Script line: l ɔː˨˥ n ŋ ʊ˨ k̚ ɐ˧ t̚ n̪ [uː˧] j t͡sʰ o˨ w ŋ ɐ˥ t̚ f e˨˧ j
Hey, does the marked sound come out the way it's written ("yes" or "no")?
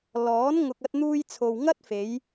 yes